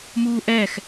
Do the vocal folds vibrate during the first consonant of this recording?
yes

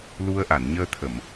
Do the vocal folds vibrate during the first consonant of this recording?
yes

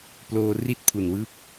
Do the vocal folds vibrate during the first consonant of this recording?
no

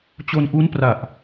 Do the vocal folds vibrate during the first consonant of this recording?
no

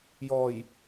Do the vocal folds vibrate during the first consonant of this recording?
yes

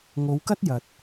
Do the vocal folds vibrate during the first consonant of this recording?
yes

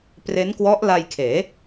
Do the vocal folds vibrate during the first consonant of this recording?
no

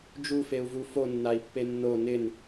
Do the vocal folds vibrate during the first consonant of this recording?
yes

